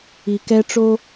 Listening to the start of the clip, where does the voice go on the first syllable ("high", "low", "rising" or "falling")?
low